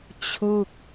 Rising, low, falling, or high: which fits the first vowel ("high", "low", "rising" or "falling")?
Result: falling